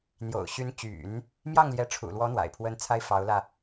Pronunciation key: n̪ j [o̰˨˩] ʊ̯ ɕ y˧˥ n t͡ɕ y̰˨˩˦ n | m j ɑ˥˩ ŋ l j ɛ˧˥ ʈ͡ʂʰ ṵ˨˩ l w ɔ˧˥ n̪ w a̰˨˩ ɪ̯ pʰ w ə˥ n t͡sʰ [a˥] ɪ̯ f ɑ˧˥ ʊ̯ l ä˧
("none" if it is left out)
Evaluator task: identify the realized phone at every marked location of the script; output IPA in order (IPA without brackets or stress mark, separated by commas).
o̰˨˩, a˥